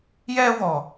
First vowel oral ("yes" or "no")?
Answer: yes